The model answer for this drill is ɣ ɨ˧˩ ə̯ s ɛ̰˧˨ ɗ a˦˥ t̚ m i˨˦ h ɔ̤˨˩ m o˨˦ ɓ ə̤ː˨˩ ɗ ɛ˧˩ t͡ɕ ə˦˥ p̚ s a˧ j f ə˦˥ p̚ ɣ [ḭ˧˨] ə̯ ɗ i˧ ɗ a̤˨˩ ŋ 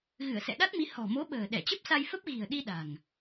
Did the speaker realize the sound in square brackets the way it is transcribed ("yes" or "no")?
no